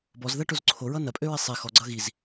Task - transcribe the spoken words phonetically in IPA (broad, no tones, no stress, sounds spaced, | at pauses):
b ɔ z ð ɐ ʈ o z ǀʰ o ɹ ʌ n ɐ pʼ ø ɹ i sˤ i x ɔ ɡ͡ǀ ʌ ɣ i z